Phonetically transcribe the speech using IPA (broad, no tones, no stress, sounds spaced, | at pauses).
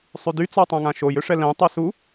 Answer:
sˤ y d y t͡s ɔ tˤ ã ŋ ã ʃ o j ø ʂ ɛ l ɛ̃ tˤ ɛ s u